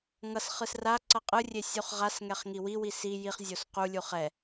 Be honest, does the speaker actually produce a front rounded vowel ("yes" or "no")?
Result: no